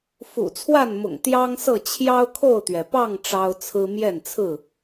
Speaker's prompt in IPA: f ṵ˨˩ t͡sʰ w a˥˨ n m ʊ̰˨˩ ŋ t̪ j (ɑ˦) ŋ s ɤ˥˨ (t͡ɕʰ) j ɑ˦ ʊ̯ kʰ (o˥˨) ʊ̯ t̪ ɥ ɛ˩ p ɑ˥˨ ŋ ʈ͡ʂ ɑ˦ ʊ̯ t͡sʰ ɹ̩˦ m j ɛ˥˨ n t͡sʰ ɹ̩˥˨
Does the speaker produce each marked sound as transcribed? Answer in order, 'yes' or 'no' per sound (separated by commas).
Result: yes, yes, yes